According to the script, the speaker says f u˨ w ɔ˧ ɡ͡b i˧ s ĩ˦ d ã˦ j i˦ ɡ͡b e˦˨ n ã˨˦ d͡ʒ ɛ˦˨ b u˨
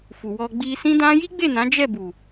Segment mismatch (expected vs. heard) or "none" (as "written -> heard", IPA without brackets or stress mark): none